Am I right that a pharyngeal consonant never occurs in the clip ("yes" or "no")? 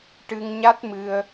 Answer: yes